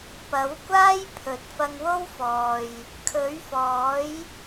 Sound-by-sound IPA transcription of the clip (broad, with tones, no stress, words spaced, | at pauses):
pɐ˨˥wkʷaː˥j pʰɵ˨t̚ fɐ˧ŋwo˥wfɔː˨j | kʰɵ˨˥ɥfɔː˨˥j